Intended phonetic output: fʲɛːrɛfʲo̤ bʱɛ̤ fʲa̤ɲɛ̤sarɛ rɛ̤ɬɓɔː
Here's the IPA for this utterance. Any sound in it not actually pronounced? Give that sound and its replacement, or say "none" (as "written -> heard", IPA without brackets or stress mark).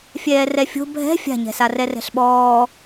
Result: none